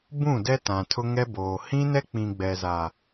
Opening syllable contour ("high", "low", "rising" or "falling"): falling